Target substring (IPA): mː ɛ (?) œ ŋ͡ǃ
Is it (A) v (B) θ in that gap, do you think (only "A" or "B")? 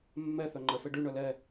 B